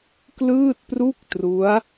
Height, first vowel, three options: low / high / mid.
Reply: high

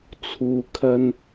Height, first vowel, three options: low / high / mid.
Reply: high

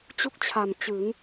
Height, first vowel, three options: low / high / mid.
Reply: high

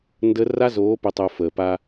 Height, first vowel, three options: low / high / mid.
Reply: mid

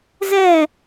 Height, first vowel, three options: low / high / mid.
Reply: mid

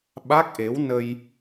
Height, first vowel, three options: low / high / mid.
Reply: low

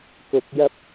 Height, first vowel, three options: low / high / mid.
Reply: high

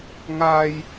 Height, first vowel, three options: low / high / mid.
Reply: low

